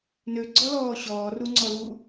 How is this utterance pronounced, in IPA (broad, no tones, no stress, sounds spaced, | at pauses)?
n ø ɡ͡ǀ ɔ l ɔː ɕ ɔː r u ŋ͡ǀ ɔ l uː